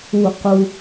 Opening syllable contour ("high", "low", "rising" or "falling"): falling